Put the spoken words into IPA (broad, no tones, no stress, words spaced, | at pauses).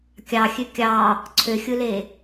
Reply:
kʲɑxʲø kʲɑ | ǀʰøxʲɯle